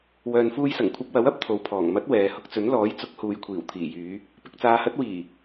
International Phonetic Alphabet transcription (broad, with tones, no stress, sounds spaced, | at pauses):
w œː˨ n f uː˧ j s ɐ˨˩ ŋ kʷʰ ɐ˧ p̚ w ɐ˨˥ w ɐ˨˥ p̚ t̪ʰ o˨ w pʰ ɔː˨˩ ŋ m ɐ˨˥ t̚ w ɛː˨˧ h ʊ˧ k̚ t͡s ɵ˨˥ n l ɔː˨˥ j t͡s ʊ˨˥ k̚ h uː˨ j kʷʰ iː˨˩ w t̪ʰ iː˨˩ j yː˨˧ | p ɪ˨ k̚ t͡s aː˨˧ h ɐ˨˥ t̚ w iː˨˩